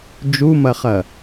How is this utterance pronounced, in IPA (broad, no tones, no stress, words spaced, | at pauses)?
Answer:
d͡ʒumɐχɐ